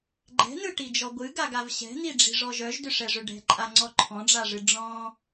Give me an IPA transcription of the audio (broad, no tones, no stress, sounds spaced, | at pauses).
ɡ͡ǃ ɛ̤ n ɯ ʈ i d͡ʒ ɔ ɡʷ ɨ ɡ a ɡ a v ɕ ɛ̤ n̪ i ɖ͡ʐ i̤ ʐ ɔ ʒ œ ʒ d ʏ ʂ ɛ ʐ ʏ ɖ ɛ̤ ǃʼ a ŋ͡ǀ ɔ ǃʰ ɔ̃ ɖ͡ʐ a ʐ ɨ ɖ͡ʐ ɔ̃